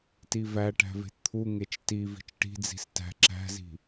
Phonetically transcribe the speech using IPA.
t i v æ ʈ æ̤ v e̤ t t̪ʰ u ŋ e t͡ʃ t i v i̤ t͡ʃ ʈ i̤ d͡z i̤ s t æ̤ ǁ æ̤ z i̤

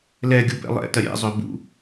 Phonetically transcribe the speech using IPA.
l ɛ ɡʲ u b ɛ̰ lˠ ɛ̰ t ɐ ɾʲ ɛ̰ zˤ ø b ṵ

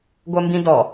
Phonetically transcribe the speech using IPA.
ɡʷ ɜ m b ĩ d ɔ

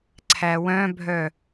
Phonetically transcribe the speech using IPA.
ǀʰ æ w œ̃ bʱ œ

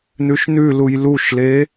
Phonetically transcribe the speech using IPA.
n ʉ ʃ n ʉ l u j l u ʃ l e

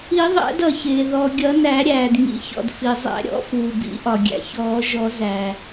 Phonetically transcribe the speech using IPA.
i˨˩˦ ðˤ æ̰˨˩˦ d ʌ˩ ç ɪː˩ ð ɔ˩ ɡʲ ʌ˨˩˦ n æ˨˩˦ ɾʲ æː˩ d ŋ ḭ˨˩˦ ç ɔ̰˩ d f i˩ zˤ æ̰˨˩˦ ɾʲ ɔ̰˨˩˦ f uː˩ b ḭ˨˩˦ ʔ ɒ˩ ɡʲ æ̰˩ ç ɔː˨˩˦ ʒ ɔ˨˩˦ z æ˩

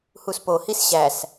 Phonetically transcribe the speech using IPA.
h u s p o h i s ɕ æ s

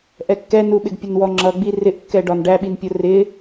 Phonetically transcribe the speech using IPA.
ʔ ɛ kː ɛ n u ɓ ɪ ɡ pʲ ə n w ɔ ŋ͡ǁ ʌ ɡ͡b i r ɪ ʔ kː ɛ ɖ ɒ n ɖ æ ɓ i n pʲ ʊ r ɪ

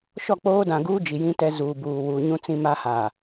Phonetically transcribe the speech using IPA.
ʃ ɔ˦˨ k͡p oː˦ d ã˨ ɡ uː˦ d͡ʒ i˨ j ĩ˦ t ɛ˦ z uː˨ b uː˨ w uː˨ ɲ ũ˦ t͡s ĩ˦ m a˦ h a˨

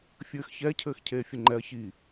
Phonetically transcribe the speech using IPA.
fʲ ɘː x ç ɛ cʰ ɘː x cʰ eː fʲ ɘ ŋ͡ǃ ɛ ɐ̯ ç i

